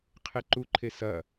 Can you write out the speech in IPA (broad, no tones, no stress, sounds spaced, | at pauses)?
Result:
qʰ e ǃ u ǃʰ e s ɐ